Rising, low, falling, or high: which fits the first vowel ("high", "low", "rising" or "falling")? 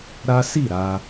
high